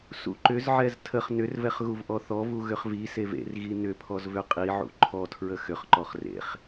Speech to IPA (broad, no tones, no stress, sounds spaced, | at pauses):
s ṵ ǃ ʏ z ʕ ɛ z tʰ ə χ n ʏ r v ɛ χ ɣ u v ʔ ɔ θ ɔ v u ɣ ʏ χ v i s e v ḛ r ɣ i n ʏ pʰ ɔ z v ʏ qʼ i ʕ ṵ ǃʰ ɔ tʰ ɹ ə x ʏ χ ǃ ɔ χ r ḛ χ